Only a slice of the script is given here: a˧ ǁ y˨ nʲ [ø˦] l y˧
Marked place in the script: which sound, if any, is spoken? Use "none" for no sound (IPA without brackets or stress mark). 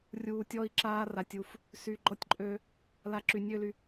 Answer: ø˦